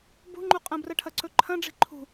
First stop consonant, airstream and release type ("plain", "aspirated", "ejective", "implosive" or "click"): plain